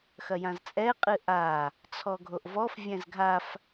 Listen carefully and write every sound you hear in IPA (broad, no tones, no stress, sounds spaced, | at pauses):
x ɐ j ã z t͡sʼ ɛ qʼ ɨ ʔ a | t͡sʰ ɔ ɡʱ o ʔ v ɔ f vʲ ɛ̃ z ɡʱ a f